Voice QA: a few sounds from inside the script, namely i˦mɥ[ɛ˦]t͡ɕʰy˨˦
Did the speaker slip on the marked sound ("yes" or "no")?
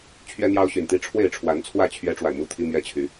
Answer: no